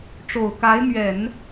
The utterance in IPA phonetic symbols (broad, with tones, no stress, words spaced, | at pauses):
ʈ͡ʂo˨˩ʊ̯ka˧˥ɪ̯mɥɛ˨˩˦n